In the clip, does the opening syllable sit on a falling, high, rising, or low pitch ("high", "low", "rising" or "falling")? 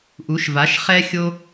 rising